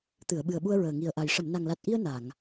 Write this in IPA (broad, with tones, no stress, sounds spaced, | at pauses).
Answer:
t̪ ɨ˨˩˨ ə̯ ɓ ɨ˨˩ ə̯ ɓ u˧ ə̯ ɹ əː˨˩ ŋ i˨˩ ə̯ ʔ a˨˩ j ʂ ə˨˩˨ m n a˨˩ ŋ l a˨˩ t̚ ʔ i˧ ə̯ n a˨˩˨ ŋ